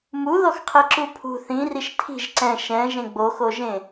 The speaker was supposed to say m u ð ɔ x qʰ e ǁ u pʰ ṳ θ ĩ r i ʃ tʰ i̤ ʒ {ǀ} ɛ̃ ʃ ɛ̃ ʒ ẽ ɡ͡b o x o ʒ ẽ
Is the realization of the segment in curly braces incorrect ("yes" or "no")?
no